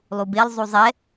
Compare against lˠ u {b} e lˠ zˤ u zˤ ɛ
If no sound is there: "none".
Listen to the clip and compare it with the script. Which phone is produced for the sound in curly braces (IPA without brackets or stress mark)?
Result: b